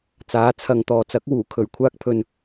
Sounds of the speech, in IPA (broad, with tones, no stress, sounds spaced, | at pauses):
t͡s aː˨˥ t͡sʰ ɐ˨ ŋ t̪ ɔː˨ t͡s ɐ˨˥ k̚ w uː˨˩ kʰ ɵ˨˩ ɥ kʷʰ aː˥ k̚ pʰ ɵ˨ n